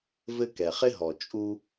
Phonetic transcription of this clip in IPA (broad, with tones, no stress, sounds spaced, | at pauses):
v ɘ˦ k ɛ˩ χ ɪ˥ ɦ ɔ˩ t͡ʃʼ u˥